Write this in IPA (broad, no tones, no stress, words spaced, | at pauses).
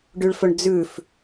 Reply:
ɖyɭfɵɳ d͡zʉf